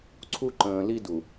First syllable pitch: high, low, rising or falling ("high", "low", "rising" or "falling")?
high